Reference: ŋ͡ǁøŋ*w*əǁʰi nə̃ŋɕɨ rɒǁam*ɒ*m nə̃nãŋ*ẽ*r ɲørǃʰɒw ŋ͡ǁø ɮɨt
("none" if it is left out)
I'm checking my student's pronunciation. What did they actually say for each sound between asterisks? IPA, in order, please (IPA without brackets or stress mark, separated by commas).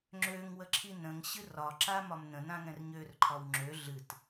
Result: w, ɒ, ɛ̃